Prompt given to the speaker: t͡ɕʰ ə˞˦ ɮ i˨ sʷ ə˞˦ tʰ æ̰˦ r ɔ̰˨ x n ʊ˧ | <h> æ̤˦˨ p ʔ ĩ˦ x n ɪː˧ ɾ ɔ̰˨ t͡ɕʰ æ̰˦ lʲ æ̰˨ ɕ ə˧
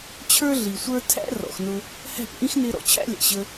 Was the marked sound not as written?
no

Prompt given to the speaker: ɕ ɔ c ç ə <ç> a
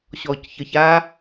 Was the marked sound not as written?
no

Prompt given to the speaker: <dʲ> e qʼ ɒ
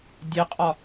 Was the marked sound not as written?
no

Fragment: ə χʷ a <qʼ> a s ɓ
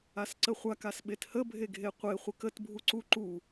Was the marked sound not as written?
yes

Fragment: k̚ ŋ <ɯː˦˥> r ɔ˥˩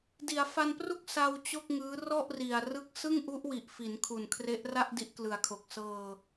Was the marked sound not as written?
no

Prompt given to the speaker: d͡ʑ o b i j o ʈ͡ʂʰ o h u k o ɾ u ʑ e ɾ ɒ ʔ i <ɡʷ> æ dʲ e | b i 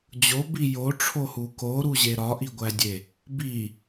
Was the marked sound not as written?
no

